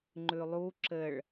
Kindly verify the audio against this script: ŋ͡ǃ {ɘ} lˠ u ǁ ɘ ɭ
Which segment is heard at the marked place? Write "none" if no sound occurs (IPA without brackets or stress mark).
ʉ